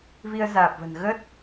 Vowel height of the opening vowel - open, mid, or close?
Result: close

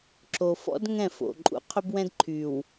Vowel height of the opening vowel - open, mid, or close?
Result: mid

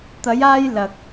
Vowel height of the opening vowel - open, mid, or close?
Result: open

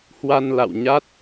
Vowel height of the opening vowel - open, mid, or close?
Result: open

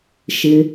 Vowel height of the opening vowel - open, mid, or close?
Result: mid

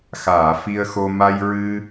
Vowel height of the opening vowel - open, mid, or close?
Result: open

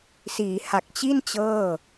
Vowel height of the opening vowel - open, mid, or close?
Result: close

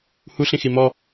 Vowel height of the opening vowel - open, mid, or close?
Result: close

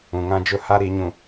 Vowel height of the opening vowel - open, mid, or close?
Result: close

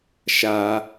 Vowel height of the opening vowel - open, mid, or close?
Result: open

